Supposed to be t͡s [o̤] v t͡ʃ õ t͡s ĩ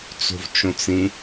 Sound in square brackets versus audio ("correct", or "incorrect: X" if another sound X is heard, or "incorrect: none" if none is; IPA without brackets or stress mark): correct